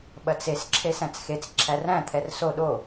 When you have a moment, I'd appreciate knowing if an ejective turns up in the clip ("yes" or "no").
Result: no